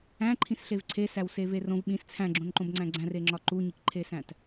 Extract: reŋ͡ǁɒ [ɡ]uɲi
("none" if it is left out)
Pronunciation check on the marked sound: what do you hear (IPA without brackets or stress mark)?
ǃ